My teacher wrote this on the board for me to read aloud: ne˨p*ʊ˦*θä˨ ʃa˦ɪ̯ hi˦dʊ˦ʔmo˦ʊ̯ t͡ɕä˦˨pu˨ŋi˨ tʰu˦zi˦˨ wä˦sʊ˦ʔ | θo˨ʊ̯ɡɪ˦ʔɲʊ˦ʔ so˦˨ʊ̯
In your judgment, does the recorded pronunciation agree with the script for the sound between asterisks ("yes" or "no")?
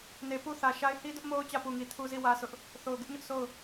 no